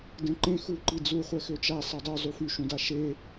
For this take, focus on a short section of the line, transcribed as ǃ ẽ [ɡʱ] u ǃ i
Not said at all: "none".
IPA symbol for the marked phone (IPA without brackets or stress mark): x